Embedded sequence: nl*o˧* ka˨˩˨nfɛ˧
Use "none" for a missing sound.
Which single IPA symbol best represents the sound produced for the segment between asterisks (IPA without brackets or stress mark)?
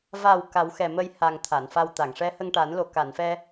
o˨˩